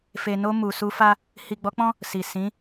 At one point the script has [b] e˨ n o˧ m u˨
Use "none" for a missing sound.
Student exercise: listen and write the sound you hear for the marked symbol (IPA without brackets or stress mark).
f